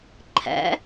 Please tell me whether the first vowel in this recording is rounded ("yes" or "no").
no